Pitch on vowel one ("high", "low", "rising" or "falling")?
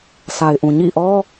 low